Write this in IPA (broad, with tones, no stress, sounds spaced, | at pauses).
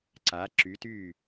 ǀ a˩˥ ǁ y˩˥ t y˥˩